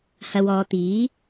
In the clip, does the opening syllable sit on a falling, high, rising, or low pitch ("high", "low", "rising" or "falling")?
low